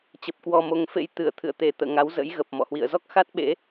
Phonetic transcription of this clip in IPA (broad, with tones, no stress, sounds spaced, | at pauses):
t͡ɕ ə˨˩ p̚ k w ɔ˨˩ m o˨˩ ŋ f ḛ˧˥ j t̪ ɨ˧˩ ə̯ t̪ʰ ɨ̰˧˨ ə̯ t̪ e˧˩ t̪ ə̰ː˧˨ ŋ a˨˦ w z ə̰˧˥ j ɣ ə˨˩ p̚ m ɔ̰˧˨ h w ḭ˧˨ ə̯ z ɔ˦˥ k̚ x a˦˥ t̚ ɓ ḛ˧˥